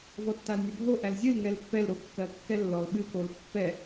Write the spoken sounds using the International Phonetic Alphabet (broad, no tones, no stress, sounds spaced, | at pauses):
v ɔ tː a l nʲ ɜ bʱ o ʔ æ l zʲ ɨ l ŋ ɛ l pː ɛ l ɾ o kː ɜ kː ɛ lː ɔ l ɓ ɨ k o l pː ɛ